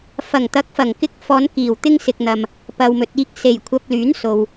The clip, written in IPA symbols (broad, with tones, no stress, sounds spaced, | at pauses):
f ɐ˨˩ ŋ t̪ ɐ˨˥ k̚ f ɐ˨˩ ŋ k ɪ˧ k̚ f ɔː˨˧ n k iː˨˩ w t̪ ɪ˥ ŋ s ɪ˧ k̚ n̪ ɐ˧ m | p ɐ˨ w m ɵ˨ t̚ iː˧ k̚ s e˨˩ j kʷʰ ɐ˧ p̚ l yː˨˥ n s o˨ w